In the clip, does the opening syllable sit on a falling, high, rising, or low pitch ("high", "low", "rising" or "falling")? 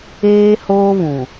high